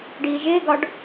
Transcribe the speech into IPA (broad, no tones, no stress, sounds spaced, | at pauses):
ɖ iː ʒ ɪː ɡ ɒ ɖ